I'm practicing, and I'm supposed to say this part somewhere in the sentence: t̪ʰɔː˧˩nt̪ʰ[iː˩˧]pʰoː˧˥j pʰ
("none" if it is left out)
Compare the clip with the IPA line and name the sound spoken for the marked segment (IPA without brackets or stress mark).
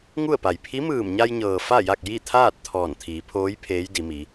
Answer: iː˩˧